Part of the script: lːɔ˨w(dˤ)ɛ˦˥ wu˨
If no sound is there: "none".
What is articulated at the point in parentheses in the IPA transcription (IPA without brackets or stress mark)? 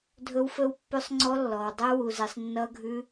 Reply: dˤ